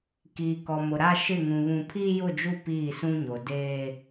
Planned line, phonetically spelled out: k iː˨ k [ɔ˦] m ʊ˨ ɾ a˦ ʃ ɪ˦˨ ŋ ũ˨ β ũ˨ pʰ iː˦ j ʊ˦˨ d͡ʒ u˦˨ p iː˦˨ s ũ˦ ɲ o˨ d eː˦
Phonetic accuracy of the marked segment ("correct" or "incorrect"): incorrect